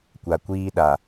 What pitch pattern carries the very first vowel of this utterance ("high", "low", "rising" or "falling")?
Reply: low